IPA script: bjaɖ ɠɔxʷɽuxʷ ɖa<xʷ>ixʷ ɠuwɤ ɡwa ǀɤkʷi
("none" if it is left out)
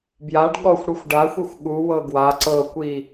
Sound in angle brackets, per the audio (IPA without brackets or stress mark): xʷ